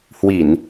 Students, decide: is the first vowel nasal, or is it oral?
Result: oral